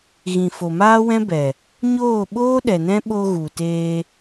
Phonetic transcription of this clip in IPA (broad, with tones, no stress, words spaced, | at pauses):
ɣĩ˨fo˨maː˦wɛ̃˦ bɛ˨ | ɲoː˦˨ɓoː˦ ɗɛ˨nɛ̃˦ ɓo˧ɣu˨teː˧